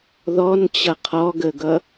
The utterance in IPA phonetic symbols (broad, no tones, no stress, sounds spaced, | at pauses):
ð ɔ n t͡ɕ ʌ qʰ ɔ ɡ ə ɡ ʌ